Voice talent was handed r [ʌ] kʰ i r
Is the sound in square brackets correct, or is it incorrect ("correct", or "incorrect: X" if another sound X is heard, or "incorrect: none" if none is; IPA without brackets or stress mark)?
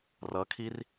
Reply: correct